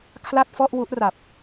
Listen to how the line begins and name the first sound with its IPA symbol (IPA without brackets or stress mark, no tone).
kʰ